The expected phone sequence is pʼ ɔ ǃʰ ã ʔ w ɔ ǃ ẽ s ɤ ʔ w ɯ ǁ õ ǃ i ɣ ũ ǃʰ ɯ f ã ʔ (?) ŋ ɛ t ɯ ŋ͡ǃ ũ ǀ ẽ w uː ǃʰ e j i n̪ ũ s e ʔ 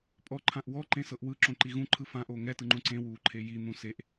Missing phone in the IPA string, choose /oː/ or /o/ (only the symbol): oː